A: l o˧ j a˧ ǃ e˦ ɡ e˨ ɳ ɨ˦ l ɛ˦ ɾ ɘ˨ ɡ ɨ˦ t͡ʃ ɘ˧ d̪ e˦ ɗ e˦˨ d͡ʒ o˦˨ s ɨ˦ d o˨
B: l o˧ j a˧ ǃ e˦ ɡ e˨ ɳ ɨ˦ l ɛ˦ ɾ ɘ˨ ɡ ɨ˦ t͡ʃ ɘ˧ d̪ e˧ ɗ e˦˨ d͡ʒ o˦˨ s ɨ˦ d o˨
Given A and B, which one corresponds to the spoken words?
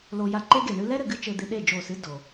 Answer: B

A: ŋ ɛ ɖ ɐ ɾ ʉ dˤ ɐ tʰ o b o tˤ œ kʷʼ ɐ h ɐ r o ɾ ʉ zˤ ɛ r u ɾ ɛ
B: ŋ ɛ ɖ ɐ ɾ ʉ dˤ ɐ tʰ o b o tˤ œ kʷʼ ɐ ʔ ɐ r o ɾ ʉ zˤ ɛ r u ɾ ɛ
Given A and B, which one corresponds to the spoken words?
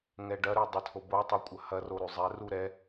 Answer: A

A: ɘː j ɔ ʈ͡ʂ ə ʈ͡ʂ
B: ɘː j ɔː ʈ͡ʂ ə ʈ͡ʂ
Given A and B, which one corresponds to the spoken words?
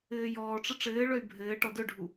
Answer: B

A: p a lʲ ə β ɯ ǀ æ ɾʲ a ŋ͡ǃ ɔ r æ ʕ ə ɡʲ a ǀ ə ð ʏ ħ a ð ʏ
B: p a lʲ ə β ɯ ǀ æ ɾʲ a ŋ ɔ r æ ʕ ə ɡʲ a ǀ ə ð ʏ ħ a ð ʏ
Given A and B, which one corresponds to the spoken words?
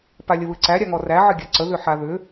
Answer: B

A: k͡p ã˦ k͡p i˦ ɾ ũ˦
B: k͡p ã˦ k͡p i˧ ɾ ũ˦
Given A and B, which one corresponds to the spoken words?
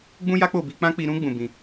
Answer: B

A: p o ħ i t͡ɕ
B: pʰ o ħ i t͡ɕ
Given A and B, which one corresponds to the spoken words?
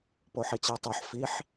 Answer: A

